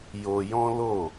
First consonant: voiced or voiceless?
voiced